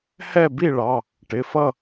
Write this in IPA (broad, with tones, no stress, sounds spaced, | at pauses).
h ɛ˥˨ b i˥˨ ɭ ɑ˩˧˩ | ʈ ɪ˩˧˩ f ʌ˥˨